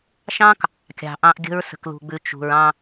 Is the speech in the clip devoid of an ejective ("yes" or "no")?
yes